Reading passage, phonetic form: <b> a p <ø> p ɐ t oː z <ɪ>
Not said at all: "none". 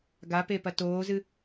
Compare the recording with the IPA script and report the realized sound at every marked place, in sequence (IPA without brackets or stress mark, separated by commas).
ɡ, e, ɨ